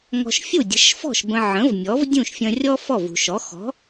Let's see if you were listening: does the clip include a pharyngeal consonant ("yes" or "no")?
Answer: yes